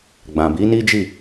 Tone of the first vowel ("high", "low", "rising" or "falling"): low